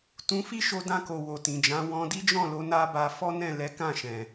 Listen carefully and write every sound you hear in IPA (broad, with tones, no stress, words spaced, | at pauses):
tũ˧fi˦ʃo˧ dã˧ko˨ wo˨tĩ˨d͡ʒã˨˦ wɔ̃˧di˦d͡ʒɔ̃˦˨lo˧ na˦ba˧ fɔ˦nɛ̃˦˨ lɛ˨˦kã˦˨ʃɛ̃˨